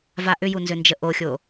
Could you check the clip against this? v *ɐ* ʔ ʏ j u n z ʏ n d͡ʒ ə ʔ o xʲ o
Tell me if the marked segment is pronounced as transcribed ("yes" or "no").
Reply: no